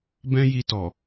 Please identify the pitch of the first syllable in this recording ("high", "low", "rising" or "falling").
high